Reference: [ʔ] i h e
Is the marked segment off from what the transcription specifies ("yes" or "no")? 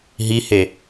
yes